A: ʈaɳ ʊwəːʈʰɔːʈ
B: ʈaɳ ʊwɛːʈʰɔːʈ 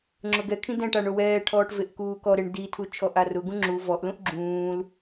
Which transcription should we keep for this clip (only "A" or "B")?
B